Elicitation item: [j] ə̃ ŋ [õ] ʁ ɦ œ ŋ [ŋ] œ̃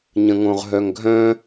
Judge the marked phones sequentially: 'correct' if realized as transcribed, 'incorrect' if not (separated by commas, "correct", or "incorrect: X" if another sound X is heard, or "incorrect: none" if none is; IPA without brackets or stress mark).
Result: incorrect: ɲ, correct, incorrect: ɡʱ